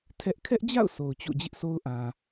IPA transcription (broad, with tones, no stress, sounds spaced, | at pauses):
tʰ ɛ˦ ʔ kʰ ɛ˦ ʔ d͡ʑ a̰˦˨ ʊ̯ sʰ o˨ ʊ̯ t͡ɕ o̰˦˨ d͡ʑ ɪ˦ ʔ sʰ o˦ ʊ̯ ʔ ã˨